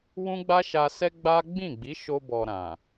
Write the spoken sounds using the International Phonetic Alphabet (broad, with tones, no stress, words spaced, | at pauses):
wũ˦ɡ͡ba˦ʃa˧ sɛ˦ɡ͡ba˦ ɡ͡bĩ˦˨ɡ͡bi˨˦ʃo˧ bɔ˨ ɾã˨